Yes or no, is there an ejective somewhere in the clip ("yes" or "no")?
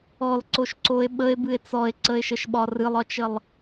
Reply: no